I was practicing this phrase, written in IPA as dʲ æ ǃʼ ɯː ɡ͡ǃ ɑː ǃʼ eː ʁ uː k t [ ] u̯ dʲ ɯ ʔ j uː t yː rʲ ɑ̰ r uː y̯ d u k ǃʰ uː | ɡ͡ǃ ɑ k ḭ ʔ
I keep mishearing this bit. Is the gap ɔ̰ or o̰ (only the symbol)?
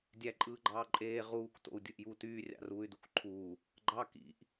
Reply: o̰